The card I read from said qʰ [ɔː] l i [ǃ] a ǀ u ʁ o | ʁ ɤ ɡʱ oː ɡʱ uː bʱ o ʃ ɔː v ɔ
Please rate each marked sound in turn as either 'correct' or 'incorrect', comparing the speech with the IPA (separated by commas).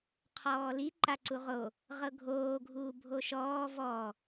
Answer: correct, correct